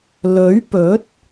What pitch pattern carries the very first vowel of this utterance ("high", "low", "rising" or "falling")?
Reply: rising